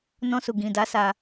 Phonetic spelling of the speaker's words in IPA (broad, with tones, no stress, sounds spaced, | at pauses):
n ɔ̃˧ s u˨ ɡ ĩ˨ d a˨˦ s a˧